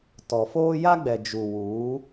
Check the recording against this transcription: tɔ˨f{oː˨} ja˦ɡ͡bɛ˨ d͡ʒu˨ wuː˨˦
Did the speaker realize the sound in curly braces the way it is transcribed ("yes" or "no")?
no